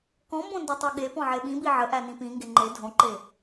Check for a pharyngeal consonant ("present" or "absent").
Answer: present